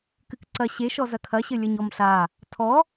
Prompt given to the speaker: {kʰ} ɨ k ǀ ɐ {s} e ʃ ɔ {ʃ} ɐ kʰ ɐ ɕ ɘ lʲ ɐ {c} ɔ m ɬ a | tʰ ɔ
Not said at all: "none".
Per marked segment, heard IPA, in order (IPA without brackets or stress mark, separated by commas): k, ɕ, z, ɲ